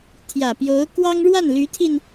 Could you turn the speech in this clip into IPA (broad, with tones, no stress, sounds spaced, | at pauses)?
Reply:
t̪ʰ j ä˨˩ p j o˧˥ ʊ̯ k w ɑ˥ ŋ ɻ w a˥˩ n l y˧˥ t̪ʰ i˧ n